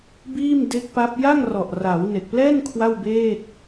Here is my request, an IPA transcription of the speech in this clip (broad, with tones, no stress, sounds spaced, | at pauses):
b iː˥˩ m d e˦˥ k̚ p a˦˥ p̚ j a˥˩ ŋ r ɔ˨˩ ʔ r a˩˦ w n e˨˩ k̚ p l ɛː˥˩ n kʰ w a˥˩ w b eː˥˩ t̚